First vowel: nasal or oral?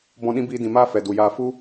nasal